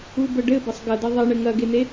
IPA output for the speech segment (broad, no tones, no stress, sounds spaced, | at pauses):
u b ə ɖ ɘ b ɐ sˤ ɡ ɐ d ɐ ðˤ ɐ ɳ ɘ ŋ ɐ ɡ e n e